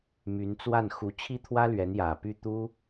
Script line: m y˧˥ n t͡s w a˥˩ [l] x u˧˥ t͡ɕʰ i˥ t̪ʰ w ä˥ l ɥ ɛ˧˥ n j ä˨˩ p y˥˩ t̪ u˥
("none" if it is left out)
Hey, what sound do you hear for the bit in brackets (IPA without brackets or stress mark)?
n